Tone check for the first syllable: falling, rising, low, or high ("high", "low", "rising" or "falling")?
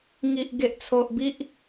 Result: low